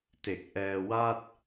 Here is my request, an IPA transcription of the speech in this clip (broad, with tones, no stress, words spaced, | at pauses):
te˨˩k̚ʔɛː˧ wa˥˩t̚